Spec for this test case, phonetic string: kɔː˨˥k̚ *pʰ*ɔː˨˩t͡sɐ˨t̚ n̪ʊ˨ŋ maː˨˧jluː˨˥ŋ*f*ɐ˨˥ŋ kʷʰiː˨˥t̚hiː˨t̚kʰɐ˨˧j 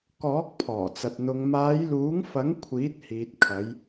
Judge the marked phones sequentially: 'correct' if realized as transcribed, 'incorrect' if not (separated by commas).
correct, correct